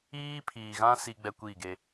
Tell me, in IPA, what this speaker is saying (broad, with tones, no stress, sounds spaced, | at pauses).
iː˦ pʰ iː˨ ɣ ã˦ s i˦ ɡ͡b ɛ˦ kʷ i˦˨ ɡ e˦